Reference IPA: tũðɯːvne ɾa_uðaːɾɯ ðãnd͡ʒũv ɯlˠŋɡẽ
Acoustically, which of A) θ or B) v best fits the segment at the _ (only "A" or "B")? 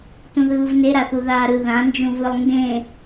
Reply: A